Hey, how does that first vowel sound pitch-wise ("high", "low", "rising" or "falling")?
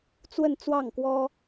falling